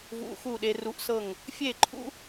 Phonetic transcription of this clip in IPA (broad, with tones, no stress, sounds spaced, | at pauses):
v ṵ˧ x u˦˨ ɗ e˧ r u˧ ʔ s ɤ˦˨ ŋ | fʲ e˦˨ ǃʰ ṵ˦